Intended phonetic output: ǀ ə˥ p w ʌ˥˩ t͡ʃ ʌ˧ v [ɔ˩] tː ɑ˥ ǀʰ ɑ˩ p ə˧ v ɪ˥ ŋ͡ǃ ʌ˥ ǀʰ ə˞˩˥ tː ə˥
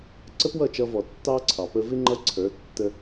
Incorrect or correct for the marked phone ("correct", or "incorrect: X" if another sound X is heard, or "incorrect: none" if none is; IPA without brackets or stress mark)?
correct